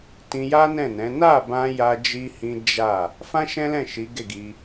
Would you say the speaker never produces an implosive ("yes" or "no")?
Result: yes